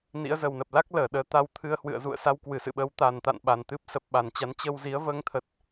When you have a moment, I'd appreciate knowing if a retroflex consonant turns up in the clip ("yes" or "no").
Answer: no